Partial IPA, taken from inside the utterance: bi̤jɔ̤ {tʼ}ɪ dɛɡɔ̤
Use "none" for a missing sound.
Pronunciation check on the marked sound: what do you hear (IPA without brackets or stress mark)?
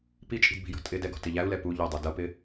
tʼ